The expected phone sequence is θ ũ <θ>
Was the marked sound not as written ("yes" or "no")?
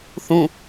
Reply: yes